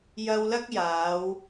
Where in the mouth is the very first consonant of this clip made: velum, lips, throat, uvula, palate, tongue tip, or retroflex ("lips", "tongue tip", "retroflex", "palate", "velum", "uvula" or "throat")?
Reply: palate